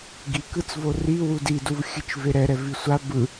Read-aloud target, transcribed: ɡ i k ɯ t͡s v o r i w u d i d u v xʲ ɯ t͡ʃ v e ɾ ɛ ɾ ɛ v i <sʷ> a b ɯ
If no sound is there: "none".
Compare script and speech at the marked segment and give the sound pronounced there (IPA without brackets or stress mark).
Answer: sʷ